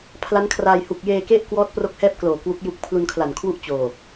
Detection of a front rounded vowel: absent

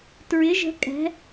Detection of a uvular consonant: absent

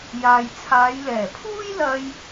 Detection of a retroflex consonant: absent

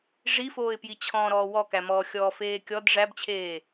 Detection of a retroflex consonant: present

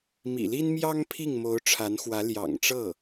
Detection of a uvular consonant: absent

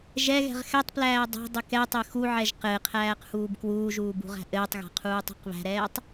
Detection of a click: absent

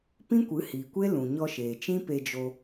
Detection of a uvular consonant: absent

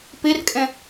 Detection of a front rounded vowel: absent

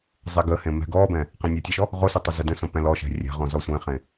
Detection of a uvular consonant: present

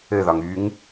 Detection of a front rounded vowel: present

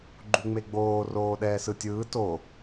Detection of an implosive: present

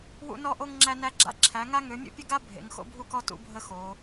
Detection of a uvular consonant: absent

